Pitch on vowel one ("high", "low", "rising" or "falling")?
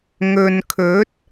low